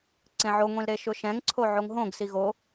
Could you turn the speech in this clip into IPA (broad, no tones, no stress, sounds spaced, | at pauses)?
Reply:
ǀ ẽ ʕ o ŋʷ ĩ l ɾ e ʃ ʊ ʃ ɛ̃ ŋ ǀʰ o ʕ o ŋ ɦ õ ɡ s i ɣ o